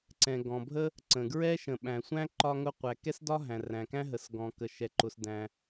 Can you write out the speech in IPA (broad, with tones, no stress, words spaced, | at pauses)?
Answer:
ǀɛ̃˩ɡɔ̃˩bʱə˥ | ǀə̃˩ ɡɹɛ˥ ʃə̃˩ɓæ̃˩sʷæ̃˥ ǃɒ˥ŋʊ˥ qʷæ˩kɛ˥sdɒ˥ ɦæ̃˩ræ̃˩kæ̃˥ ɦə˩sɡɔ̃˩ kə˩ʃɛ˩ǃʊ˩sdæ̃˩